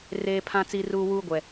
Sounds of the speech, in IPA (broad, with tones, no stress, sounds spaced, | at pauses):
r eː˦ pʰ ã˦ t͡s i˦ r uː˦ w uː˦ ɡʷ ɛ˨